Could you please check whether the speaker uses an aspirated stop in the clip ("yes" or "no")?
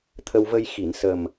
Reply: yes